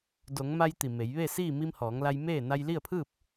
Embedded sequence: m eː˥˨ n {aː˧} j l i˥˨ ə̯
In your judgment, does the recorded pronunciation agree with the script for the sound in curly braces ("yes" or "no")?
no